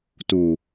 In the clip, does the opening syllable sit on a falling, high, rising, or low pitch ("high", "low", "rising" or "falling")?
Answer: low